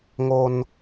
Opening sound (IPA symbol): ŋ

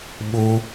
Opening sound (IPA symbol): ɓ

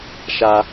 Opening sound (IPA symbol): ʃ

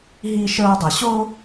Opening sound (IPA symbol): ɦ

